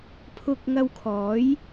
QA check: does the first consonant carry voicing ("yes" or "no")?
no